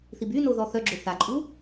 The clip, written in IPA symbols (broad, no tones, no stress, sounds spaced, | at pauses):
θ i b y n o ð ɔ θ œ ɡ͡ǁ o θ a ǃʼ u